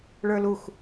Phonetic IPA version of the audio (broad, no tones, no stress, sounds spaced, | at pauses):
ɭ ə˞ l u x